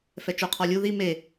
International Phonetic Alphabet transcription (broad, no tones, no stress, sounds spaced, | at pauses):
f ɛ t͡ʃ o qʰ ɔ lʲ u ð i m e